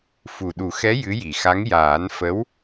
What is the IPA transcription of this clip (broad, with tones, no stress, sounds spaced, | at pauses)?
f u˨˩ ɗ u˨˩˦ x ɛ˧˥ j ɨ˧˥ j i˨˩ x a˧˥ ŋ j aː˨˩˦ n f ə˧˥ w